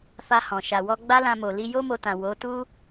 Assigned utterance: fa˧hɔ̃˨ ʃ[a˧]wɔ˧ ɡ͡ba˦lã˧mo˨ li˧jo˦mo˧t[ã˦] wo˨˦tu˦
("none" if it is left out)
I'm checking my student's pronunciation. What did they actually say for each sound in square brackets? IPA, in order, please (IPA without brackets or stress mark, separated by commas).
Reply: a˨, ã˨